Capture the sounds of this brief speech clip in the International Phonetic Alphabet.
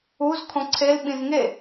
u z kʰ õ ǀʰ e l ɓ ĩ z ŋ e

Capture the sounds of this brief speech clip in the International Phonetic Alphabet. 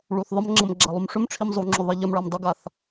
ɭ u θ ðˤ ə m ŋ͡ǁ ə m ɡ͡ǁ a lˠ u m ʂ ʏ m ʈ͡ʂʰ i m zˤ u ŋ͡ǁ ʏ ðˤ i ʎ ə m ɭ a m dˤ ʏ ɡ a θ

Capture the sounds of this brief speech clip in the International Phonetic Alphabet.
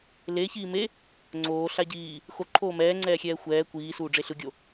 l e ç iː m e | ŋ͡ǀ oː ɬ a ɟ iː | x o ǃʰ oː m ɛː ŋ͡ǀ ɛː xʲ ɛː xʷ ɛː kʷ iː s uː ɖ͡ʐ e ɬ ɯ ɡʲ o

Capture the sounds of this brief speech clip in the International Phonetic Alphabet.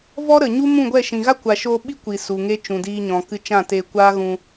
v ɔ˦ ɾ ə˨ ɲ u˦ m ũ˦˨ ɡʷ ɛ˦˨ ʃ ĩ˨ ɣ a˦ kʷ a˨ ʃ oː˧ ɓ i˦ kʷ i˨ s u˨ ŋ e˦ t͡ʃ ũ˨ d iː˧ ɲ ɔ̃˨ k ɨ˧ t͡ʃ ã˦˨ t e˧ kʷ aː˦ ɣ ũ˧

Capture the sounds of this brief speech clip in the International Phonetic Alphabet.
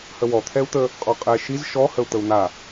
h ə w ɔ t̪ʰ ɛ u̯ t̪ ə | qʼ ɔ qʼ ɛ ʃ i z ʃ ɔ h ə u̯ t̪ ə u̯ n̪ a

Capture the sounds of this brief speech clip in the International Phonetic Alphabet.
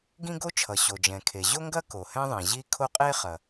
ɡ ĩ˥ ɡ o˥ t͡ʃʰ ʌ˩ ɕ o˩ d͡ʒ ɛ̃˩ kʰ e˩ ʑ o˥ ŋ ɡ ɐ˥ k o˩ h ɛ̃˥ ðˤ ɛ̃˩ ʑ i˥ kʰ o˥ qʼ e˥ χ ɐ˩

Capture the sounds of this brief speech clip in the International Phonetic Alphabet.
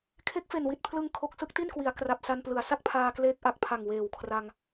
kʰ e˦˥ k̚ f e˨˩ n w i˨˩ t̚ pʰ l ɯ˧ ŋ kʰ o˨˩ k̚ s ɯ˥˩ k̚ t i˥˩ n k w i˩˦ a̯ k r a˨˩ p̚ s a˧ n p l ɯ˩˦ a̯ s a˥˩ k̚ pʰ aː˧ k l eː˦˥ k̚ ʔ a˨˩ k̚ pʰ a˨˩ ŋ w eː˨˩ w kʰ r a˧ ŋ

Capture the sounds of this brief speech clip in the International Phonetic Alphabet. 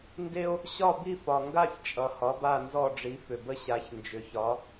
n d e˥ o̯ | ɕ ɒ˥˧ b i˥˧ f ɒ˨ ŋ ɡ a˥˧ sʲ t͡ʃʼ ʌ˨ h ɒ˨˥ b a˥˧ n z ɔ˥˧ ɖ͡ʐ i˨˥ f ʏ˨ b ə˥ ɕ a˨˥ ç n d͡ʒ ʏ˨ ç ɒ˨˥

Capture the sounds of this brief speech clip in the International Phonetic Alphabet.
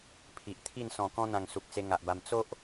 pʰ i˨ ʔ t̪ʰ i˥˧ n s ɔ̃˨˩ k ɔ̃˧ n̪ ã˨˩ ŋ s u˨ k̚ t͡s e˧ ŋ a˨ ʔ b a˧ m t͡s o˦ ʔ

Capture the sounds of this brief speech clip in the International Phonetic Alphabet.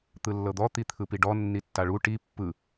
t̪ ɯ lː ɤ d̪ ɔ t̪ i t̪ʰ ɯ p i ɖ ɔ nː i tː a ɭ u ʈ i pː ɯ

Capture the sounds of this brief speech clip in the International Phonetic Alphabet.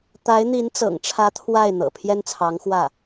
t̪ a˧˥ ɪ̯ n̪ i˧˥ n t͡s ɤ̰˨˩ ŋ ʈ͡ʂʰ ä˧˥ t̪ʰ w a˥˩ ɪ̯ n̪ ɤ̰˨˩ pʰ j ɛ˥ n t͡sʰ ɑ˧˥ ŋ x w ä˥˩

